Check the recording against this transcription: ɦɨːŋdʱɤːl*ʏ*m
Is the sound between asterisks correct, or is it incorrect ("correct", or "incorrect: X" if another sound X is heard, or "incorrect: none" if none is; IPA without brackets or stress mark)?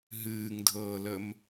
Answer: incorrect: ə